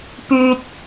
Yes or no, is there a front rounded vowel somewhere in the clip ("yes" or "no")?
yes